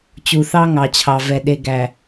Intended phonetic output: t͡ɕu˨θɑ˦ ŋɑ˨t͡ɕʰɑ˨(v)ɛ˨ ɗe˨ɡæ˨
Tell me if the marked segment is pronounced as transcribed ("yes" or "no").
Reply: yes